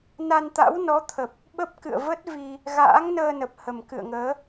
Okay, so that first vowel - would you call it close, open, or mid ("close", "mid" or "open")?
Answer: open